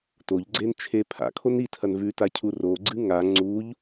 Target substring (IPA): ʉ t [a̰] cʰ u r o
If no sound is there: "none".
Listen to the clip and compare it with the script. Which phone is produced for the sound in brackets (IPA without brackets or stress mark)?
a